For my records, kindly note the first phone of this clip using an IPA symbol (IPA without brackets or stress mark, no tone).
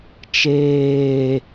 t͡ʃ